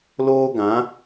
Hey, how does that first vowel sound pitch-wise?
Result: high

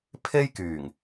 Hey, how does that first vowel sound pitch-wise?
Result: high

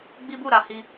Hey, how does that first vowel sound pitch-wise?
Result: high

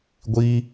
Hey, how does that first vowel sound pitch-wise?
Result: high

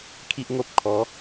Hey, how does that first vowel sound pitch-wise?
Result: high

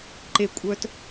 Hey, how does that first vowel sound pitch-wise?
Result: low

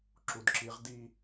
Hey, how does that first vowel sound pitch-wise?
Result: low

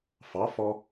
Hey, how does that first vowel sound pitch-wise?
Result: rising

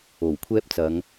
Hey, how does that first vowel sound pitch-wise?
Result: low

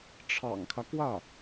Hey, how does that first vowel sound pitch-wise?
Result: low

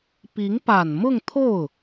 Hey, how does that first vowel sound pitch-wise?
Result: rising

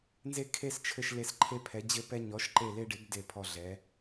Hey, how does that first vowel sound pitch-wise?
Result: high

